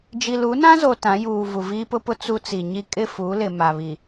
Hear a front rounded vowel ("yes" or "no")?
no